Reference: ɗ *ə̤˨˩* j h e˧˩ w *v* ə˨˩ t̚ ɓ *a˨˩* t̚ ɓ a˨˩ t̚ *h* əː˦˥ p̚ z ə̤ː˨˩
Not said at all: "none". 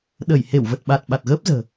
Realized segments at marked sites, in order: ə˧˩, v, a˨˩, ɣ

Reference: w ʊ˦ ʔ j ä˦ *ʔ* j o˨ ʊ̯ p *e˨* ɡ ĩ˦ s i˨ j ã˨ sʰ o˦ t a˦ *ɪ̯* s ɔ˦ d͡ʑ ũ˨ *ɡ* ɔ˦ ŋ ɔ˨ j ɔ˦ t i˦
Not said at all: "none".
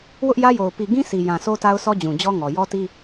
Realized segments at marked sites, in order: none, i˨, ʊ̯, d͡ʑ

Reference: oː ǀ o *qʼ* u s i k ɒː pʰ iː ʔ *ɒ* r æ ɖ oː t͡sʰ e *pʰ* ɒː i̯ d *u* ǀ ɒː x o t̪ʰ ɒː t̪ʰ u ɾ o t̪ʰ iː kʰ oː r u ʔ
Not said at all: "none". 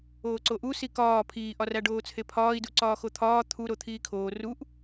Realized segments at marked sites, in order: ʔ, ɒ, pʰ, u

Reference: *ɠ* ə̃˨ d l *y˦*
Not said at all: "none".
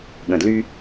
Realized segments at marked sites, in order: ɠ, y˦

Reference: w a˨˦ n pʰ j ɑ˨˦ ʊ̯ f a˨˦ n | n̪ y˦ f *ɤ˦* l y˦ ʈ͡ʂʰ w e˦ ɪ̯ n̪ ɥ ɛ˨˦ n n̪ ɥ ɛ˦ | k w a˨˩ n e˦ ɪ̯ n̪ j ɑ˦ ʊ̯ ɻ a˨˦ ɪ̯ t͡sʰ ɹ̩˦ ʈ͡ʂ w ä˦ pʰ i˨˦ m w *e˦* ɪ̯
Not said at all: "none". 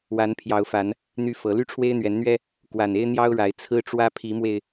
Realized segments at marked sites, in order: ɤ˨˦, e˧

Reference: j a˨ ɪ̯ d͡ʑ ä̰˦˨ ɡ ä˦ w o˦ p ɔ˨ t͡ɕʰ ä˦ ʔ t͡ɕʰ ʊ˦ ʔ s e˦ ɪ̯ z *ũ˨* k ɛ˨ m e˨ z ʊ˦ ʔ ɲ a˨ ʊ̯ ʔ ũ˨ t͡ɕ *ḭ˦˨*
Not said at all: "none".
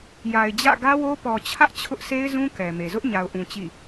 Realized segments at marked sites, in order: ũ˦, ḭ˦˨

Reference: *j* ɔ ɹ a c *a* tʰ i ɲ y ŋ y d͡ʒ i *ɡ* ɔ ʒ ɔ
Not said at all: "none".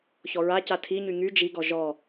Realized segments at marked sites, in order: ç, a, ɡ

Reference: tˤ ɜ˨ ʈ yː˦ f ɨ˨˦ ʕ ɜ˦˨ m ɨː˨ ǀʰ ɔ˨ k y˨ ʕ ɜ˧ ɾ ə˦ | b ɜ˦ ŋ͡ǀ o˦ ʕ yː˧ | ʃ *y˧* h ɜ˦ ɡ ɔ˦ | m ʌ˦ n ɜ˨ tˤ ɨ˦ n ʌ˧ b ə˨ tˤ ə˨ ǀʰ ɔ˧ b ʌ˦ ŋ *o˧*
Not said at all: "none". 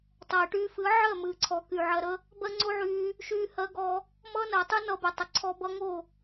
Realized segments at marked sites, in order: yː˧, o˦˨

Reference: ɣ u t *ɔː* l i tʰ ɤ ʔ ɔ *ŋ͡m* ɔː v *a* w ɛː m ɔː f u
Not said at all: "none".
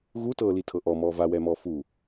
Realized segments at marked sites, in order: ɤː, m, a

